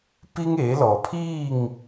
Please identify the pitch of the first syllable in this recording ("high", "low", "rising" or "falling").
high